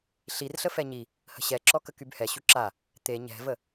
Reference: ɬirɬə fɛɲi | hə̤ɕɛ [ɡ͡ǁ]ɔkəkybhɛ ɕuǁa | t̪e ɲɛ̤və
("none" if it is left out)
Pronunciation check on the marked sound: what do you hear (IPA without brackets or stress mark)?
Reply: ǁ